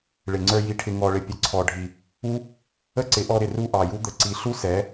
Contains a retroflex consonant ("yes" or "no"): yes